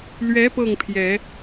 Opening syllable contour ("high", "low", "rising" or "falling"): rising